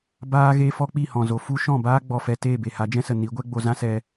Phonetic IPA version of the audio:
b aː˦ ɣ e˦ f ɔ˦ k͡p i˦˨ h ɔ̃˨ z o˨ f u˦ ʃ ɔ̃˦˨ b aː˦ ɡ͡b ɔ˧ f ɛ˧ t e˦˨ b e˨ h a˨˦ d͡ʒ ɛ̃˦ s ə˨ n i˨˦ ɡʷ ɛ˦ ɡ͡b o˧ z ã˦ s ɛ˧

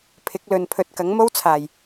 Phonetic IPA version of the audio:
pʰ ɪ˨˥ k̚ l ɵ˨ n pʰ ɵ˨˥ t̚ k ɐ˨˥ ŋ m o˥ w t͡sʰ aː˨˩ j

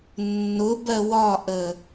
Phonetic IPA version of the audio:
nː ʊ b ɜ w ɒ ʔ ə

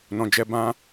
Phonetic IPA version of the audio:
n ɔ̃˨ d͡ʒ ɛ˧ b ã˦

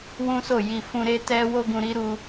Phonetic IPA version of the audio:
w ũ˦ s o˦˨ j i˨ f ũ˧ ɾ e˦ t ɛ˦ w o˦ ɡ ũ˧ ɾ i˦ ɾ u˧

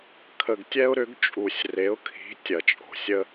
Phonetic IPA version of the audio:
kʰ ə˨ ɡ tʲ ɛ˦ ʊ̯ ɾ ʏ˨˦ ɡ t͡ʃʼ u˨ sʲ r e˨˦ ʊ̯ kʰ i̤˨˦ tʲ ɐ˨ t͡ʃʼ o̤˨ sʲ ə˦

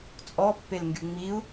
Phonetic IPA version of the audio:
t͡sʼ ɔ pː e l ŋ ɡ y ŋ͡m i u̯

